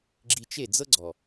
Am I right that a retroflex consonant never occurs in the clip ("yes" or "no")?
yes